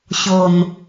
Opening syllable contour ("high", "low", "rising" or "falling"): low